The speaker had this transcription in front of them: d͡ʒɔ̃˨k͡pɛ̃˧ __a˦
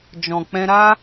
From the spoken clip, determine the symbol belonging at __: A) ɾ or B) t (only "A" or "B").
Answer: A